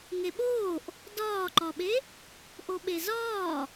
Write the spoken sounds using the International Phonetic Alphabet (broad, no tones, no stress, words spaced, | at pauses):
ŋeɓoːʔ | dɒːǃɒɓe | ʔoɓezɒː